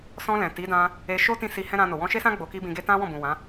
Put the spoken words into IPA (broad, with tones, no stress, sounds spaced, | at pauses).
s ɔ̃˧ l ɛ̃˨ t i˨˦ d ã˧ | e˧ ʃ o˦ t ĩ˦ s i˧ h ɛ̃˦ ɾ ã˧ n o˨ w ɔ̃˧ ʃ e˦ s ã˦ ɡ͡b o˧ k i˦ b ĩ˧ ɡ e˦ t ã˦ w ɔ̃˦˨ b ũ˨ w ã˨˦